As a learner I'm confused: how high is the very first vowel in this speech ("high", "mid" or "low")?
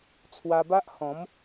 low